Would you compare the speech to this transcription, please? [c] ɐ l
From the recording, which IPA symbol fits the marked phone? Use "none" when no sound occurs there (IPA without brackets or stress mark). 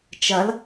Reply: t͡ʃ